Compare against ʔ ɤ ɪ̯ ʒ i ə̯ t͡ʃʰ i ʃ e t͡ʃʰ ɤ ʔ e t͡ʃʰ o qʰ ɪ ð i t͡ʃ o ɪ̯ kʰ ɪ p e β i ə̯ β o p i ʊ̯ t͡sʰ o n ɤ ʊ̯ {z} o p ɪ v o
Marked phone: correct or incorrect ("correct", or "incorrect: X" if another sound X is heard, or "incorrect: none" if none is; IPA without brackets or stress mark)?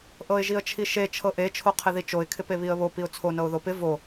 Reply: incorrect: ð